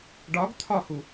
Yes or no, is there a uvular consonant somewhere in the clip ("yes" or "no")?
no